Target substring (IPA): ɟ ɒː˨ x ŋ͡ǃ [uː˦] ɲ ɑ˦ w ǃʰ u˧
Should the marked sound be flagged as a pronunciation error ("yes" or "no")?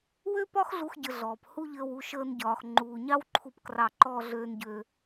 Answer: yes